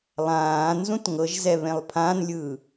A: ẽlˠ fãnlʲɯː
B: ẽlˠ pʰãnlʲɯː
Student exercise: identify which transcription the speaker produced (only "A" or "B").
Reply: B